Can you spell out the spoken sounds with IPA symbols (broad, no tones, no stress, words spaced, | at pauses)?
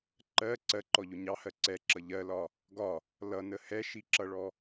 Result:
ǃɜ ǀɜǃɔʎʊ ɲɑhɜ ǀɛǁʌ ʎɜlɒ | ɡɒ | lʌnə hɛʃiǁʌɭɔ